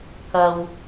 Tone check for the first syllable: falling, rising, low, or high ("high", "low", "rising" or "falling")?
low